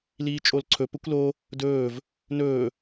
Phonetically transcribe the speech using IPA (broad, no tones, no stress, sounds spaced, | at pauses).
l iː t͡ʃʼ o l ǀʰ ɵ p ə kʷ l o | d ɵː v | n ɵː